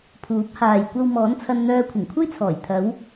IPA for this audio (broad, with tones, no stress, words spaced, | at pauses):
pʰuː˨˥p̚haː˨j kʷɐ˧w mɔː˨˥nt͡sʰɐ˧nn̪œː˧ kʷʰɪ˨˩ŋkʷʰɐ˥jt͡sʰɔː˨˩j t̪ʰɐ˨˧w